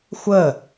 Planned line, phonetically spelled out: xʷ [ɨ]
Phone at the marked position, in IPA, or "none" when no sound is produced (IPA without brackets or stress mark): ə